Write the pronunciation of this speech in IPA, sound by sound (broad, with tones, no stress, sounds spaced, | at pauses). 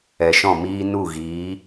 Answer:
ɛ˨ ʃ ɔ̃˦˨ m iː˦ n u˦˨ ɣ iː˨˦